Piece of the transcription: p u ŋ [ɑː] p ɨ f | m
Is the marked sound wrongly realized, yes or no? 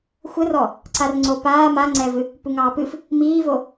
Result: no